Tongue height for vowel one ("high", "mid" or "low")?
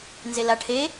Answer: mid